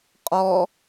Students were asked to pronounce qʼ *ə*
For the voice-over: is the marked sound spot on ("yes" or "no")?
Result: no